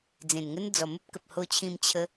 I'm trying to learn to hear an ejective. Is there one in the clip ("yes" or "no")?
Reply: no